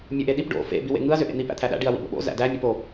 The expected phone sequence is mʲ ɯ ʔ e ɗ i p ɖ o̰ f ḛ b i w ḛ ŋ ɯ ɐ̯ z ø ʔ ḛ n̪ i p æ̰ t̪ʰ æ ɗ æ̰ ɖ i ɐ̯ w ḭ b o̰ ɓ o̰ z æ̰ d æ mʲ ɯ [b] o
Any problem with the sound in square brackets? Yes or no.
yes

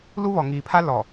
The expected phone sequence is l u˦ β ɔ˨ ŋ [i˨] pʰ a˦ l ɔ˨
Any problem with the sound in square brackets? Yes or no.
yes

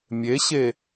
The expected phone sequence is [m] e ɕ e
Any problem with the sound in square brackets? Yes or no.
yes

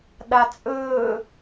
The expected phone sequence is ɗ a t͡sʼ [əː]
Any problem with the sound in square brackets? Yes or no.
yes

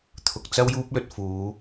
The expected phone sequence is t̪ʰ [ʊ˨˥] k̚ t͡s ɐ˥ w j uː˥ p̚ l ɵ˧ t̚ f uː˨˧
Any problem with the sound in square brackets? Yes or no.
yes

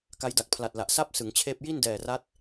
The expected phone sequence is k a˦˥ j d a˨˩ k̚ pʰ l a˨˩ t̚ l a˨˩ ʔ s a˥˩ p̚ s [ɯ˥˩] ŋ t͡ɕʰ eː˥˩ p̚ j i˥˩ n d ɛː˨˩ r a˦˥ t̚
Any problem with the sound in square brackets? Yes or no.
yes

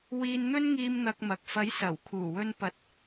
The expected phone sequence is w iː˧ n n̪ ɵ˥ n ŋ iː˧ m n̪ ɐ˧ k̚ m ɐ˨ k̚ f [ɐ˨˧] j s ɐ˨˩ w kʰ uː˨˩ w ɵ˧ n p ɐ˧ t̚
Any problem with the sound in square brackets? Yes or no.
yes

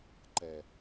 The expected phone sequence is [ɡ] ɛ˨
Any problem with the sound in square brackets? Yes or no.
yes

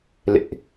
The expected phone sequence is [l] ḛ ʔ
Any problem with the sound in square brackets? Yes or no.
no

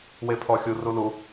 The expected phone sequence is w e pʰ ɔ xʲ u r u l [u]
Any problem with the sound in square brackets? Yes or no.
no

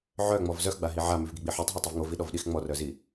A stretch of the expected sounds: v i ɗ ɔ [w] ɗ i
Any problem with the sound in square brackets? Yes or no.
yes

